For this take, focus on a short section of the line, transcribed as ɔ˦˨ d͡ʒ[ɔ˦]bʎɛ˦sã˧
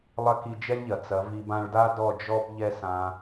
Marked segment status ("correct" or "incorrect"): correct